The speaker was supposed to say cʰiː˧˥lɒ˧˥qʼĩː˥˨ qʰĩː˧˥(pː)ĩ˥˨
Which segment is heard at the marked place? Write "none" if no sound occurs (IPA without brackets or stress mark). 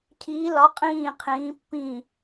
pː